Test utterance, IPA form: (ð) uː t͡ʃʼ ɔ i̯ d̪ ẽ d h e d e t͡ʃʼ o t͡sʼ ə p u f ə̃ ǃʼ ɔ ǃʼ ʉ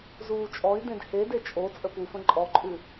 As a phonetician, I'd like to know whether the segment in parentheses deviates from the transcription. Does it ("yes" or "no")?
yes